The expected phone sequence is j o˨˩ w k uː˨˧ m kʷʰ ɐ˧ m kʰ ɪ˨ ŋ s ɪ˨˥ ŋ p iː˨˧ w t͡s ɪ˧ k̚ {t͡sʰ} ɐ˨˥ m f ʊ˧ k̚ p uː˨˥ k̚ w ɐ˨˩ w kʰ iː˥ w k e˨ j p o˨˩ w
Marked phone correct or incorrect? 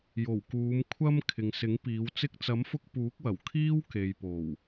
incorrect